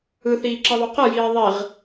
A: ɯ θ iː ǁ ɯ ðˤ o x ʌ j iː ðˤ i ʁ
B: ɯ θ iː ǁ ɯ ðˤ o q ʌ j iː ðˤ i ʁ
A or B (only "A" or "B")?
B